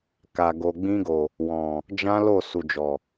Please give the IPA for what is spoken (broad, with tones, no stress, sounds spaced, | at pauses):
k a˨ ɡ o˨ ɡ͡b ĩ˧ ɡ o˨ | w ɔ̃˨ | d͡ʒ ã˦ l o˦˨ s u˨ d͡ʒ ɔ˨